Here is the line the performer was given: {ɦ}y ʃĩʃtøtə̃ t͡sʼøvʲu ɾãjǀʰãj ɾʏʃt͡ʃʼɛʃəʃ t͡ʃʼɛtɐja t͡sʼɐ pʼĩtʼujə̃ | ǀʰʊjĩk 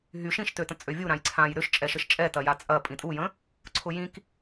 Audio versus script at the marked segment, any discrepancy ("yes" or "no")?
no